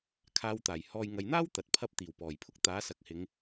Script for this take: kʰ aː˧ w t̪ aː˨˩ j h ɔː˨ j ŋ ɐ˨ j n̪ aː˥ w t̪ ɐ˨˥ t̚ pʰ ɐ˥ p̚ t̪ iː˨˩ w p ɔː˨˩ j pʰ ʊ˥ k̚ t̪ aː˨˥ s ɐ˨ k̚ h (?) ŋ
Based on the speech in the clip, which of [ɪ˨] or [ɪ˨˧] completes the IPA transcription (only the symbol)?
ɪ˨˧